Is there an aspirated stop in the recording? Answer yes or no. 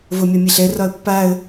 no